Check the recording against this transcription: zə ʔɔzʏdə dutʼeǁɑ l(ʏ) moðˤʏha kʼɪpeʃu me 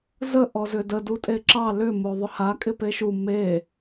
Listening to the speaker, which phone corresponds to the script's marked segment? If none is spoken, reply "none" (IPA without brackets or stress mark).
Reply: ʏ